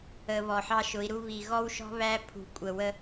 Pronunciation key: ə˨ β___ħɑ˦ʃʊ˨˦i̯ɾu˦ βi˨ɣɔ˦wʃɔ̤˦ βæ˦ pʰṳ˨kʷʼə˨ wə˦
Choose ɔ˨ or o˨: ɔ˨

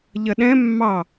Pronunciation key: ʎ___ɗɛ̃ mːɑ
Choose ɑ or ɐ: ɐ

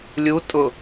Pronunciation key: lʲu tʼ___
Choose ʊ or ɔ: ʊ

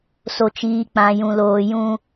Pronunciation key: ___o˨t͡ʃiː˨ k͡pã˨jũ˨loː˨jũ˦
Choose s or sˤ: s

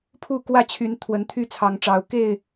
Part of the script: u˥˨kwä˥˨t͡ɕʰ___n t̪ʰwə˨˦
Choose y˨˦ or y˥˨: y˨˦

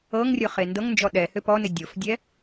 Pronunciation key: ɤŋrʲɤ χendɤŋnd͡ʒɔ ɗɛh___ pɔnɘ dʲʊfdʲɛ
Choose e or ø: ø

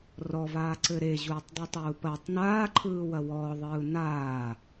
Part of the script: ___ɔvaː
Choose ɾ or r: r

